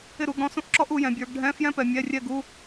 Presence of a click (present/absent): present